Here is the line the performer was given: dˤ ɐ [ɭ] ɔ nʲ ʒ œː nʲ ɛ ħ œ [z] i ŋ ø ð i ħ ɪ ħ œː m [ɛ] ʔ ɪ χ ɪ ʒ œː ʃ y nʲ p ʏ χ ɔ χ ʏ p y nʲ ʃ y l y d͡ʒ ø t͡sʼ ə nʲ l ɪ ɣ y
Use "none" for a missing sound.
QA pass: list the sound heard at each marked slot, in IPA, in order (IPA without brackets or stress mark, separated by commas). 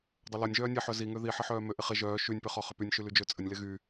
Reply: l, z, ø